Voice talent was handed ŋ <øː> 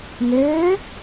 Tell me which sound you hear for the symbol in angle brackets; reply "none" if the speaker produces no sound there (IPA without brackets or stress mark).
øː